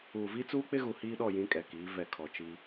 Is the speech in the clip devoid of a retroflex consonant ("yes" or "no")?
yes